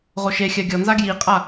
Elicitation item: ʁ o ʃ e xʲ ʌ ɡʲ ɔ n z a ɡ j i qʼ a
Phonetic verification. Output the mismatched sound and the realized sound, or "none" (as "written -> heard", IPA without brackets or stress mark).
ʌ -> a